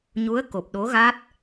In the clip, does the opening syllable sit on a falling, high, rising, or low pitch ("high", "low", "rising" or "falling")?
rising